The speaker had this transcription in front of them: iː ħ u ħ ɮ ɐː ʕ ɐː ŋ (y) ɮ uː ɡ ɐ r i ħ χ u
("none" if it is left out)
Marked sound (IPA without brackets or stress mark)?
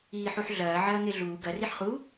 e